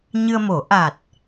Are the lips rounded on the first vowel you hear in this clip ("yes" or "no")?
no